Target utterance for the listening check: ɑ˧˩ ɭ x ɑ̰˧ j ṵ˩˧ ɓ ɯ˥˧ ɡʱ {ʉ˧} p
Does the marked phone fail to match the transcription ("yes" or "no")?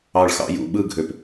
yes